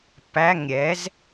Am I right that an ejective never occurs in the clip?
yes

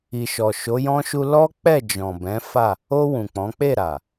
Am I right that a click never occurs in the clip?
yes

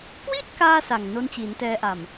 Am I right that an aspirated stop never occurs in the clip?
yes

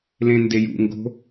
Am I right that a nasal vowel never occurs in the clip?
no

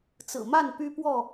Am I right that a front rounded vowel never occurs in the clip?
no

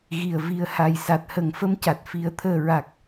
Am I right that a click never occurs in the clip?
yes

